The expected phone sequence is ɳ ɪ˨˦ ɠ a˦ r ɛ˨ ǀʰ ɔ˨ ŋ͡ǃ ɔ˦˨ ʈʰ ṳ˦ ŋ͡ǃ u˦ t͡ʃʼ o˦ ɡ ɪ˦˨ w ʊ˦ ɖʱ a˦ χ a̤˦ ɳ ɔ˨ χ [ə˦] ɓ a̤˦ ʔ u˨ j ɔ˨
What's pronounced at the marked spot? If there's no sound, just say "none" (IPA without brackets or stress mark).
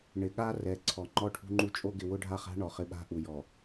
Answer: ɪ˦